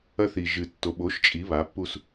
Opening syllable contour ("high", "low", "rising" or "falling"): high